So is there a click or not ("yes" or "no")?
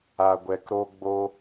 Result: no